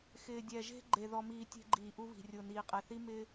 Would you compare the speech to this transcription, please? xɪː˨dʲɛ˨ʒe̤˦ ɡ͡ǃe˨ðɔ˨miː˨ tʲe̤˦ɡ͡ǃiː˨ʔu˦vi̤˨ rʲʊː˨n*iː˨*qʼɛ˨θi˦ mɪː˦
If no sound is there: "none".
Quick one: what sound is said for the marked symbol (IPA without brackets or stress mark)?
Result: iː˨